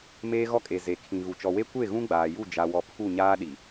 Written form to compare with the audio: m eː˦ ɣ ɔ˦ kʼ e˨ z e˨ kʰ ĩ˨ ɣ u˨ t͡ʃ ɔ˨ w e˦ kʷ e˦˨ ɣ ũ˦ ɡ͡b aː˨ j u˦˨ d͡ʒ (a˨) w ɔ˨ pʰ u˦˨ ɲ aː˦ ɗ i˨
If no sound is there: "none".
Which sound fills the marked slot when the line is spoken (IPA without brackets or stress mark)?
a˨